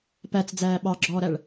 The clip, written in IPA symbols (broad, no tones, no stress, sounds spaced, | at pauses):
p æ t͡s d͡z æː ɓ ɑ ɡ͡ǁ ɔː ɾ æ ɭ